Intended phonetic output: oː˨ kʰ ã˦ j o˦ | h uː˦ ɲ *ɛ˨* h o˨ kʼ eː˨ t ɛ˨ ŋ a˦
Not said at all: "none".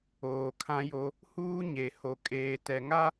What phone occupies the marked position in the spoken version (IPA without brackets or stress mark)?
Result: e˨